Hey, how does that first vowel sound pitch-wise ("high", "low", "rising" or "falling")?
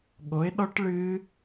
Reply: rising